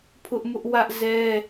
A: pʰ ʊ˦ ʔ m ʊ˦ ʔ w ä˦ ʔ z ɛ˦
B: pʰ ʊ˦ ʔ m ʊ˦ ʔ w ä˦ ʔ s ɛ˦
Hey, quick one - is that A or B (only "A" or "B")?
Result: A